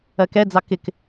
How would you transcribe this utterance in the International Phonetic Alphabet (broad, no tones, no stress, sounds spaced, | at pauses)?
ɜ k ɛ d͡z ɑ k ɪ k